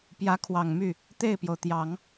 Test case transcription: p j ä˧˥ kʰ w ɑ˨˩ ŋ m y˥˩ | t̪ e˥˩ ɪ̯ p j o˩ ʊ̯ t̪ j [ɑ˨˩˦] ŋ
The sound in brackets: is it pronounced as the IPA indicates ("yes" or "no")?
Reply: yes